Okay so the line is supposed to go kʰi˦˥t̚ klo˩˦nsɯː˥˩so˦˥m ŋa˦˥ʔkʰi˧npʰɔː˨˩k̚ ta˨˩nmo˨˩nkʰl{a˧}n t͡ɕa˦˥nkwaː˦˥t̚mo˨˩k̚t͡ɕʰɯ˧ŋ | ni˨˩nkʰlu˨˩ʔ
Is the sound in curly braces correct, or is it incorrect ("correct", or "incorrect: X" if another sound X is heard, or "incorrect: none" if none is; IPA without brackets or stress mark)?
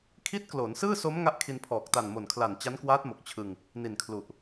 incorrect: a˨˩